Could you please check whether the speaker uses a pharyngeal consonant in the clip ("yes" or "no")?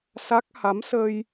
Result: no